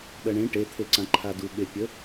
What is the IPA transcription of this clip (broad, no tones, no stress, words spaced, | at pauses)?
ɗɐɳẽ ʈet̪ʰeǀã ǃʰadu ɠepʲə